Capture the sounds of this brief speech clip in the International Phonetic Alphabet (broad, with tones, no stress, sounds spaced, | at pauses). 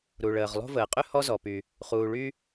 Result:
ɾ u˩ ɭ əː˩ ʁ lˠ o̤˦ v əː˩ qʼ ʏ˥ h ɔ˦ z ɔ˩ p y˩ | χ uː˩ ɭ y˦